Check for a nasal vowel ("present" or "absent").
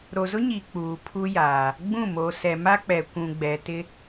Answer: present